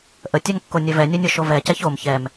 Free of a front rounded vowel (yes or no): no